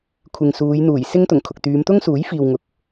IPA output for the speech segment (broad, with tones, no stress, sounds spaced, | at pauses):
kʷʰ ɪ˨ ŋ s uː˨˧ j n̪ uː˨˩ j s ɪ˥ ŋ t̪ ʊ˨˩ ŋ kʰ ʊ˨ k̚ t̪ yː˨˧ m t̪ ʊ˥ ŋ s uː˨˥ j f iː˨ w ŋ ʊ˨ k̚